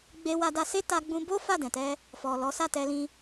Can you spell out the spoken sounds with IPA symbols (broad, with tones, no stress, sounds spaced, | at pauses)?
ɡ͡b e˧ w a˧ d a˧ s e˦ t a˧ ɡ͡b ũ˧ b o˦ f a˦˨ d ɛ̃˨ t ɛ˧ | f ɔ˨ l ɔ˨˦ s a˦˨ t ɛ˧ l ĩ˧